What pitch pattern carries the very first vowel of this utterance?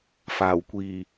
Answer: low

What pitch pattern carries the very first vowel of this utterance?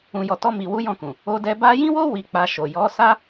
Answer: low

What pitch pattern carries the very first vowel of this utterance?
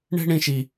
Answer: high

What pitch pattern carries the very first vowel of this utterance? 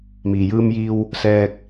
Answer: low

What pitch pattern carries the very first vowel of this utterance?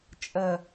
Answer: low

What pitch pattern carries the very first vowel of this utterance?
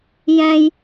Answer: high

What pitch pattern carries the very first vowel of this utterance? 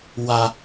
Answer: low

